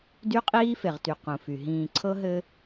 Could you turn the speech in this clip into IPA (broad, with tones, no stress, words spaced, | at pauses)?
dy˦qʼiː˦fe˨ʁty˨ qũ˨fy˨ ɦĩː˨ ǀʰɤ˦ɦɘ˦